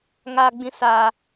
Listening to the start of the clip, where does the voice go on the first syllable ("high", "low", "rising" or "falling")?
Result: low